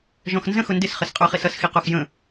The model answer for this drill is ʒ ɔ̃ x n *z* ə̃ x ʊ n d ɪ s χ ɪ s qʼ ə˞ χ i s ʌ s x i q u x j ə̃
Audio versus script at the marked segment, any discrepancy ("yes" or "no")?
no